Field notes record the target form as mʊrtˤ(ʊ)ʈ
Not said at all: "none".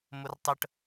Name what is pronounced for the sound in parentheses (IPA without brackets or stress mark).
ə